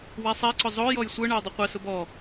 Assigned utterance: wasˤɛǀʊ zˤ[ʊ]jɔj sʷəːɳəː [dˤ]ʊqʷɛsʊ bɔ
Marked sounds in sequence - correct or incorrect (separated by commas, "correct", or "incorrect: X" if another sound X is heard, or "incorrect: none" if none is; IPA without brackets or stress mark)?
incorrect: ʊː, correct